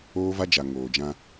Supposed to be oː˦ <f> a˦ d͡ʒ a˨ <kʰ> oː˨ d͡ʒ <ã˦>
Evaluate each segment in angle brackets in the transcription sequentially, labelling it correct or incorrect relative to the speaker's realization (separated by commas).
incorrect, incorrect, correct